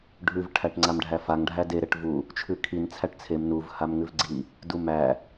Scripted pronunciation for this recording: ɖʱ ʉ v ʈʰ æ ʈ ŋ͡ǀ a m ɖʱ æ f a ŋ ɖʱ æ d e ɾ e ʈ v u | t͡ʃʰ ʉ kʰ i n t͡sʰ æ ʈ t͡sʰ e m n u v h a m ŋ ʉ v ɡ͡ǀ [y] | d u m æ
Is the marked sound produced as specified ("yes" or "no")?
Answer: no